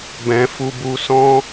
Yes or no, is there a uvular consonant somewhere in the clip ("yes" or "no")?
no